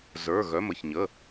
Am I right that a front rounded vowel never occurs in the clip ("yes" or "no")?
no